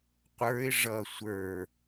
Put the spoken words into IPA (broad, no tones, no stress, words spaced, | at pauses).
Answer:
qʷə˞ɪ̯ ʐʌ sʷə˞